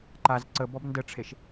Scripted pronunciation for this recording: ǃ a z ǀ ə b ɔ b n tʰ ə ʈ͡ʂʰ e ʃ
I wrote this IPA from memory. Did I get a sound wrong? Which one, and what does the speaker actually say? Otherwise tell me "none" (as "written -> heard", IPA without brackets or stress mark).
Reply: tʰ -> d